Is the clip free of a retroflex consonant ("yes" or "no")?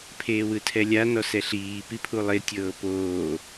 yes